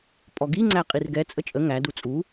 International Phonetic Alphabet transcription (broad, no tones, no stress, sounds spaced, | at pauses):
pʼ ɔ ɡ i ŋ͡ǀ æ qʼ i r ɡ ɛ t͡sʼ ə t͡ʃʼ ə ŋ æ d u t͡sʼ u